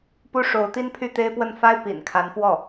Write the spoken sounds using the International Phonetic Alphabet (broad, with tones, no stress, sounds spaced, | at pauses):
p u˥˩ ʂ o˧˥ ʊ̯ t̪ i˥ n pʰ y˥˩ t̪ e˥ ɪ̯ p w ə˥˩ n f a˥ ɪ̯ p ḭ˨˩ n kʰ a˧˥ n f w ɔ˥˩